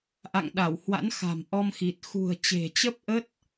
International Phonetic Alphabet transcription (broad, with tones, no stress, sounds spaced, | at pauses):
ʔ a̰˧˨ ŋ ɗ a˧˩ w h w a̰˧˥ n x a̤˨˩ m ʔ ɔ˧ m x i˨˩ t̚ x ṳ˨˩ ə̯ t͡ɕ e̤˨˩ t͡ɕ ə˦˥ p̚ ʔ ə˦˥ t̚